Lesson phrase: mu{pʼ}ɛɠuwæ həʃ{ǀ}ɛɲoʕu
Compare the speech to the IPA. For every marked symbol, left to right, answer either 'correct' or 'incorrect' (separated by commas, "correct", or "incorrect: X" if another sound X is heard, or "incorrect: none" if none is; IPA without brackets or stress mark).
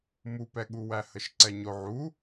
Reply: incorrect: p, correct